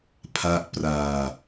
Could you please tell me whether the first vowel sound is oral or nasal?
oral